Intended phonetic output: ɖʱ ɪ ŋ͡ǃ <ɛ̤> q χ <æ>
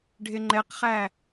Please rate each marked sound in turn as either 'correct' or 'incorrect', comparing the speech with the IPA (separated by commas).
incorrect, correct